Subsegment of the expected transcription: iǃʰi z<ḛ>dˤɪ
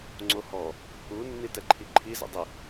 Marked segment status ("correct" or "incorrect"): correct